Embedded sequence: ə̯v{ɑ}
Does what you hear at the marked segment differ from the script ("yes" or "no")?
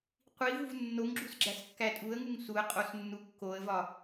yes